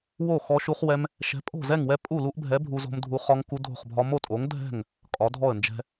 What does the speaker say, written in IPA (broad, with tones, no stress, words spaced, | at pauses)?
wo˥˩xɔ˦ʃu˦χwɛ˦m | ʃɛ̤˨˥pʼo̤˥˩zɛ˥˩ŋwɛ˦ pʼu˥˩lu˦ʔbʱɛ˨˥ bʱu˦zo̤˦mdʱu˦ χɒ˦ŋku˦dʱo̤˥˩χbʱɒ˦ mo˥˩tʼo˨˥ŋ dʱɛ̤˥˩ŋ | kʼɒ˨˥dʱɔ˥˩ə̯nd͡ʒɛ̤˦